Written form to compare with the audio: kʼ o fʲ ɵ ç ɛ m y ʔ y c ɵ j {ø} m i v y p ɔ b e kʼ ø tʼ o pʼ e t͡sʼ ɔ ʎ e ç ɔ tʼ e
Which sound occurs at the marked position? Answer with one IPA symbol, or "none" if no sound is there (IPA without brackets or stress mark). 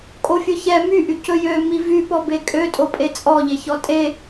ø